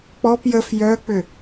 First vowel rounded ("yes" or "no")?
yes